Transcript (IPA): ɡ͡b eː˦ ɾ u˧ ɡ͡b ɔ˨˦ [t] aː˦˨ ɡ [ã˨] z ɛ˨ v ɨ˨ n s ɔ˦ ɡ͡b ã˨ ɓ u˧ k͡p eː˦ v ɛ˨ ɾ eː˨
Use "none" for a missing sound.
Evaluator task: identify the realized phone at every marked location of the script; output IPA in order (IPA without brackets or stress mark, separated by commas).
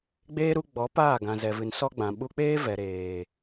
p, ã˨